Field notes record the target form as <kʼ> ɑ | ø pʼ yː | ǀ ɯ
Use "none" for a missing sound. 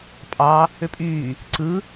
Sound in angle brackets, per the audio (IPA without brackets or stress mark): pʼ